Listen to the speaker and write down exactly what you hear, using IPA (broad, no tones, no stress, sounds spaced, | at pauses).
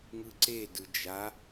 ŋ ɯ ǀ e d ɯ d͡ʒ a